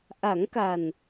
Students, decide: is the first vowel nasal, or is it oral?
oral